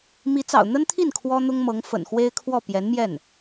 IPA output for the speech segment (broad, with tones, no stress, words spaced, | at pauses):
mi˧˥t͡sɑ̰˨˩ʊ̯n̪ə˥nt̪ʰi˥˩n kʰwɔ˥n̪ʊ˥ŋmɤ˧˥ŋ fə̰˨˩nxwe˥ɪ̯kʰwɔ˥˩ pjɛ˧˥nmjɛ˥˩n